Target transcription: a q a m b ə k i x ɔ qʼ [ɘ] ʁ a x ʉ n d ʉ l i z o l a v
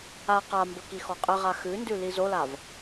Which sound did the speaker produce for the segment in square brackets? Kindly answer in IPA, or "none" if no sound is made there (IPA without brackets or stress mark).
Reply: ɘ